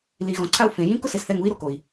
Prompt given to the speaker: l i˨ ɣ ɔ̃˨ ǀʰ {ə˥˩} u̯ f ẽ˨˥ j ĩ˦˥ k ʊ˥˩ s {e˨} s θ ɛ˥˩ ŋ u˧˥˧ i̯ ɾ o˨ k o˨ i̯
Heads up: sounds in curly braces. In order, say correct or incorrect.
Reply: incorrect: a˥˩, correct

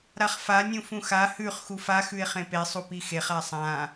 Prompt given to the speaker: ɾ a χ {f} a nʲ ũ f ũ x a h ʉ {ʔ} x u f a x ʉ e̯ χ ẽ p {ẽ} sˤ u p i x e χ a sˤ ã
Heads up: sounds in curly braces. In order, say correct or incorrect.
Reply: correct, incorrect: χ, incorrect: e

